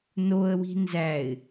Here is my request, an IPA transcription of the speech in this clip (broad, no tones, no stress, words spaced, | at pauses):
noə̯wi̤ nzæɪ̯